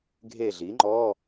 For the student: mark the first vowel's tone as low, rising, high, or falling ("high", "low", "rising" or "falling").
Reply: falling